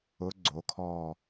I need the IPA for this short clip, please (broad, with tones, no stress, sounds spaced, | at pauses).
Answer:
ʊ˧˥ ɡ͡ǀ o˩˥ kʰ ɔ˦˨